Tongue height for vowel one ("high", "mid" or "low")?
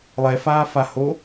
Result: mid